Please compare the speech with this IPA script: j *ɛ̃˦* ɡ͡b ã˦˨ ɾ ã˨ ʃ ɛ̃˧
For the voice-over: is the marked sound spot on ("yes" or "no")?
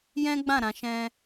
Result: yes